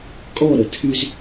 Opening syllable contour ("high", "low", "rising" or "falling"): falling